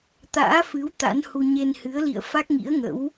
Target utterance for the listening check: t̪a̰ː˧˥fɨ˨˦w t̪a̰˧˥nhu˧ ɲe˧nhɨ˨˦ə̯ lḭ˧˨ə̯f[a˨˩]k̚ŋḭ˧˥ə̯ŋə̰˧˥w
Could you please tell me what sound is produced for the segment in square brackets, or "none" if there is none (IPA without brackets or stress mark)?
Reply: a˦˥